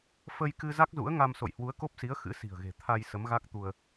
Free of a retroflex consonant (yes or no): yes